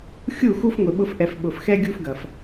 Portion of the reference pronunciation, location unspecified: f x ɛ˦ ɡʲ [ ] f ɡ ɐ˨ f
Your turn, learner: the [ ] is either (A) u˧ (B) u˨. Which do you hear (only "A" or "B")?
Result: A